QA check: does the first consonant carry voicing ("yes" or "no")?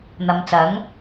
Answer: yes